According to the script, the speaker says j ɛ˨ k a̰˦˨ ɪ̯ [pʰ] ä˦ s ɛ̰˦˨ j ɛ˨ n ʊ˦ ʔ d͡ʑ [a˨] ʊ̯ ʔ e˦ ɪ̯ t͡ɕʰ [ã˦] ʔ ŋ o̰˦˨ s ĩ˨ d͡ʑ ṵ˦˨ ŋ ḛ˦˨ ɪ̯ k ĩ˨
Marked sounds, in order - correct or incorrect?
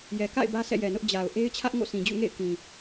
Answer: incorrect: b, correct, incorrect: ä˦

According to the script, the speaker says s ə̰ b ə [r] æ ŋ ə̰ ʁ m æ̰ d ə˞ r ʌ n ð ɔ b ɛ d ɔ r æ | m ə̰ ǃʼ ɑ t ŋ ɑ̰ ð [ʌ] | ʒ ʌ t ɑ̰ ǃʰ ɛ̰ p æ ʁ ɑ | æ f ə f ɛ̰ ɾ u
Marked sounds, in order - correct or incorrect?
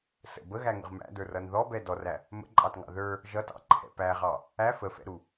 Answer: incorrect: ɣ, incorrect: ə˞

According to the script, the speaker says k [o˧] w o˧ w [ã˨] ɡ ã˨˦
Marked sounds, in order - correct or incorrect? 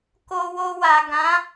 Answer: correct, incorrect: a˨

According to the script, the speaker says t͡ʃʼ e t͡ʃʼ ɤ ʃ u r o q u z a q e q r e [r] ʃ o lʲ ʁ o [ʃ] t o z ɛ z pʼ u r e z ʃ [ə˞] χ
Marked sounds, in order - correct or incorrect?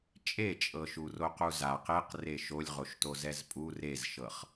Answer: incorrect: none, correct, incorrect: ɤ

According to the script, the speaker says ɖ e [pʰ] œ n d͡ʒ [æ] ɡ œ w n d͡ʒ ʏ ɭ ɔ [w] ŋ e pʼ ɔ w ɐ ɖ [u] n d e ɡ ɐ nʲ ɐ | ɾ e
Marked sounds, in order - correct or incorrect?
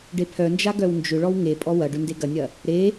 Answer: correct, incorrect: a, correct, incorrect: ʏ

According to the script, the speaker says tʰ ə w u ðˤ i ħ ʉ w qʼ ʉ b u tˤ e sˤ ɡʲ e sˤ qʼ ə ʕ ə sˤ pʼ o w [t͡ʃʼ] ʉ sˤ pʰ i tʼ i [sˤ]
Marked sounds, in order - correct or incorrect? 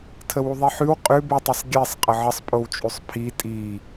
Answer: correct, incorrect: none

